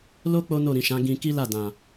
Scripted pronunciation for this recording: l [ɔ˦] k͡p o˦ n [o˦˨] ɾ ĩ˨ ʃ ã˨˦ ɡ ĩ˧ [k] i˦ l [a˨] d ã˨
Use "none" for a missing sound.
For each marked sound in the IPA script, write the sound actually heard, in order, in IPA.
o˦, o˦˨, k, a˦˨

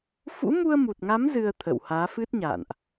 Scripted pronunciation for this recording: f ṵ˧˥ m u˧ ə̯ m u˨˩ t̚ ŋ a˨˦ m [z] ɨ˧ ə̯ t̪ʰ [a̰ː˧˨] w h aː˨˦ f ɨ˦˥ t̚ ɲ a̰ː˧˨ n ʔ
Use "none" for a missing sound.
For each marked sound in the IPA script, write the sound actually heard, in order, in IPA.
z, ə̰ː˧˨

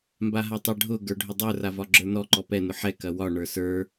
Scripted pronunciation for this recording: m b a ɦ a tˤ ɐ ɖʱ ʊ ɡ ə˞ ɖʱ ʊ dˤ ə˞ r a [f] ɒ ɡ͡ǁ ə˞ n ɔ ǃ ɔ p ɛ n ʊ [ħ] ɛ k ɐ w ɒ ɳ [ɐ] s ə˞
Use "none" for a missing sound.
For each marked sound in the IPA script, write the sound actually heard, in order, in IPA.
v, ħ, ə˞

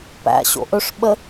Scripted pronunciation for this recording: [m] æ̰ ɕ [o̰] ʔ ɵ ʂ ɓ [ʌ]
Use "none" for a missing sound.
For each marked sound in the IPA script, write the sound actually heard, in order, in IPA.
p, o̰, ə

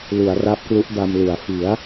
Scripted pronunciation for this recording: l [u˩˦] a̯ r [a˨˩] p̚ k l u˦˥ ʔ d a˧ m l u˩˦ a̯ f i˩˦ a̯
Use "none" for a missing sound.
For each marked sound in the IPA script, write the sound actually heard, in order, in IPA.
u˩˦, a˦˥

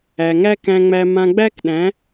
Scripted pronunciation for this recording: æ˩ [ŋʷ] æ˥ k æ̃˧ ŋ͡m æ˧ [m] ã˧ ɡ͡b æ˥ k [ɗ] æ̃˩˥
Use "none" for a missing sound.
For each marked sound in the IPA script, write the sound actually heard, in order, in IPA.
ŋ, m, ɗ

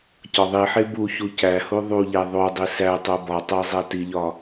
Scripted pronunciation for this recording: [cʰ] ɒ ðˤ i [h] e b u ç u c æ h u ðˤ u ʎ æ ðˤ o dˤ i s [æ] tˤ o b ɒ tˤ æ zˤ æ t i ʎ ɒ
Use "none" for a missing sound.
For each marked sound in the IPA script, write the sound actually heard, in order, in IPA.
c, ħ, æ

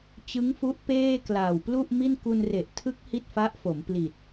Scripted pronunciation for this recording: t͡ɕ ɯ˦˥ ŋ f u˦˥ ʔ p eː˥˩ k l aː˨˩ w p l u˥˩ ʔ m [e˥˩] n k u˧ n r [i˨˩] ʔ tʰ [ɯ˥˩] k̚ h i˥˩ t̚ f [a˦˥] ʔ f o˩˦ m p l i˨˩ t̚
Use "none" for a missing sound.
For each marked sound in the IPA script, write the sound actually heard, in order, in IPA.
i˥˩, e˨˩, ɯ˦˥, a˦˥

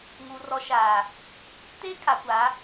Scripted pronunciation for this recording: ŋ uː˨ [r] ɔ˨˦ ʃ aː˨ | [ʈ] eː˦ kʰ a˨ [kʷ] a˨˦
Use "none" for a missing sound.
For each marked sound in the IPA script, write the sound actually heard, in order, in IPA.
r, t, kʷ

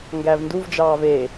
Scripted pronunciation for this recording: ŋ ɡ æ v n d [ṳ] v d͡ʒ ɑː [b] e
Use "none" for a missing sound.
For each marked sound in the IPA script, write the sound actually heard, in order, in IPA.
u, v

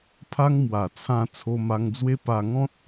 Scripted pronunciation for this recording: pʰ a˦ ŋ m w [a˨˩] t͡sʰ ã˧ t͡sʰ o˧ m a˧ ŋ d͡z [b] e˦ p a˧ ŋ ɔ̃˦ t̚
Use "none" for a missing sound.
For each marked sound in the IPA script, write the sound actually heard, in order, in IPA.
a˨˩, w

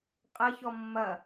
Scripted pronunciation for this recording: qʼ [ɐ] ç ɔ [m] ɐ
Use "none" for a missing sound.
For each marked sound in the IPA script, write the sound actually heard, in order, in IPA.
ɐ, mː

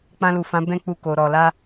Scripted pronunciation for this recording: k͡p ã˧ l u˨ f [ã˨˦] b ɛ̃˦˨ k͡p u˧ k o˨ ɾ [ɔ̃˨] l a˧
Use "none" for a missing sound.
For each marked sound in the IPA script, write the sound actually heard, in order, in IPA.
ã˨˦, ɔ˨

